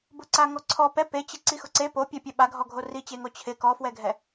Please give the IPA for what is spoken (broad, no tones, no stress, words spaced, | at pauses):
bʊǀaŋɔǀʰɔ pɛ pet͡ɕɪ ǀixʊǀe popʲɛpʲɛ ɓaɡʱɔɡʱo rit͡ɕeŋo t͡ɕʰɪ kɔfwɛɡʱɛ